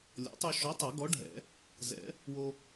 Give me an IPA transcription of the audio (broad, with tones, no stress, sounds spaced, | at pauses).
lʲ ɔ̰˨˥ tˤ u˧ ʃ ɔ˨˥ tˤ a˨˩˦ ɡ ɔ˨˥ ɖʱ ɛ̰˨˩˦ | z ɛ̰˨˩˦ | w o˧